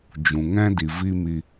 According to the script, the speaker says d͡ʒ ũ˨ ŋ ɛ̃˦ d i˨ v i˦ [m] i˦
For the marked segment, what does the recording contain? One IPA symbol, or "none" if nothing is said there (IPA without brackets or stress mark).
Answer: m